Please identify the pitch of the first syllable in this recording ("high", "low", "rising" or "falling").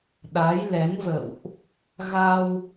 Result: rising